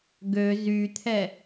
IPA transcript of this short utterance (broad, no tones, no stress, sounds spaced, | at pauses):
ɡ ø z y t̪ʰ ɛ